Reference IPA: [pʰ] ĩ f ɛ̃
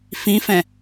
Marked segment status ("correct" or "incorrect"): incorrect